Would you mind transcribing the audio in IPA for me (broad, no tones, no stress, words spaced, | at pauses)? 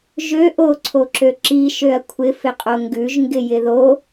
ʒø ʔoǀʰoǁø ǁiʃøɐ̯ kʷʰɪfɪqʼo ŋɡʉʒŋɡɪjɪ ðo